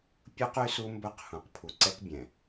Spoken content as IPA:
pʲ u˦ q y˦ s u˦ m b ɵ˦ q h ũ˨ q pʰ u˨ ǀ ɛ˦ k bʲ ɛ̃˨

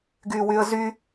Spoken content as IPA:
ɡ yː w y ə̯ z y

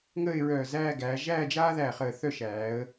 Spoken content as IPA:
ŋ əː˥˧ ɪ̯ ɹ œː˧˩ z æː˥˧ ɡ æː˩˧ ʒ æː˥˧ d͡ʒ aː˥ ð æ˧˩ χ əː˧˩ θ œ˥˧ ʃ æː˩˧ ə̯

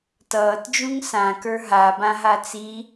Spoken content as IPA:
t ʌː t d͡ʒ ũ ŋ s ã k ə˞ ɦ a b ã ɦ a t͡s i

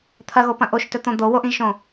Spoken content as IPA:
t̪ʰ ɐ ɣ o p ɐ̃ ʔ o ʃ t ɵ t̪ õ d̪ o w o ʔ ĩ ʒ ʃ õ

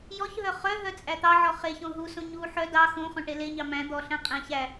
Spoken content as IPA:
j ɔ ç ɦ œ χ œ ɦ œ t͡sʼ æ t̪ ɑ ʕ ɔ χ e ç õ ɦ u s õ ɲ u ħ œ d ɑ x õ χ õ ʈ e l e ɲ ɑ m æ̃ d̪ ɔ ɬ æ̃ qʼ æ̃ ç æ

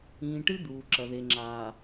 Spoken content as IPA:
ĩː˨ ʈ ɨ˦ d̪ uː˨ ǁ ɐ˨ ð e˨ ŋ͡ǁ aː˨

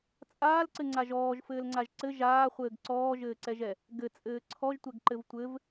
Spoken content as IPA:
t͡sʼ aː l ǀ ɘ ŋ͡ǀ a ʒ ɔː ʒ f ɘː l ŋ͡ǀ a ʒ ǀ ɘ ʒ aː χʷ ɘː ɡ ǀ ɔː ʒ ɘː ǀ ɛ ʒ ɛ | ɡ ɘ t͡sʼ ɘː ǀʰ ɔ ʒ tʷ ɛ ɡ ǃ ɘ v tʷ ɘ v

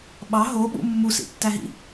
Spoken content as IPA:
ɓ ɑ ɦ o ɓ ṵ mː u s ḭ tː æ ɦ ḭ

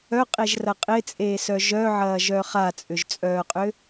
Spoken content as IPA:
œ qʼ e ʒ r ɐ qʼ ɪ t͡sʼ eː s œ ʒ œ ʕ ɐː ʒ œ χ a t͡sʼ ʏ ʒ t͡sʼ œː qʼ ʏ

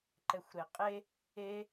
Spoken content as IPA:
ǃ ɛ xʷ ɾ e qʼ e | e

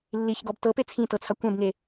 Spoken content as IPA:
lː i ç ɡ ɔ b t ɤ p e t͡sʰ ĩ t ɤ t͡sʰ a kʷ ɛ̃ b ŋ e

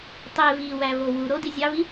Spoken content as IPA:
tˤ e v i w æ v o w u ɾ o d i zʲ ɑ v i

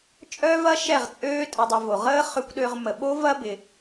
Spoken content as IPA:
t͡ʃʼ œː˦ v ɐ˦ ʃ ɛ˦˨ ʁ t͡sʼ øː˦ tʼ ə˧ dˤ ʊ˧ v o˨ ʁ əː˦ χ ʏ˦ kʷ ɗ ø˦ ʁ m ə˧ ɓ o˦ v ɐ˦ b ɪ˧

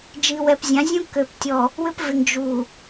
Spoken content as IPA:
d͡ʒ i˨ w ɛ˨ p zʲ ã˨˦ zʲ ũ˦ k ø˨ p tʲ ɔ˨ | w ʏ˦ p v ɪ˨ ŋ d͡ʒ uː˨

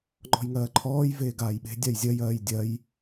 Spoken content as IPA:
ŋ͡ǃ ɔ̤ j ŋ ɜː ǃʰ ɔː j v eː ɡ aː j ɓ e̤ dʲ a j zʲ ɜ j ɜː j dʲ ɜ j

